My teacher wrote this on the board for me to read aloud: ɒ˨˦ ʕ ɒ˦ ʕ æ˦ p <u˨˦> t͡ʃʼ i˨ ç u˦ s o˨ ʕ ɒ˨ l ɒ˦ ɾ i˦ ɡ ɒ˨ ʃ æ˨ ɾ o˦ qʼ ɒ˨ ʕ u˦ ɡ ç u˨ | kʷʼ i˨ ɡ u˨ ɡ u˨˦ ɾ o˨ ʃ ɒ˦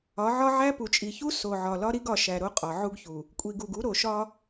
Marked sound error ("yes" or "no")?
yes